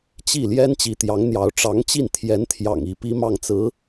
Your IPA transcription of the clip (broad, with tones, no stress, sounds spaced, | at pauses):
t͡ɕ i˥˩ l j ɛ˥ n t͡ɕ i˧˥ t̪ j ɑ˧˥ ŋ n̪ j ɑ˧˥ ʊ̯ ʈ͡ʂ ɑ˧˥ ŋ t͡ɕ i˥˩ n t̪ʰ j ɛ˧˥ n t̪ʰ j ɑ̰˨˩ ŋ i˧˥ p i˥ m ɑ˥˩ ŋ t͡s ɹ̩˧˥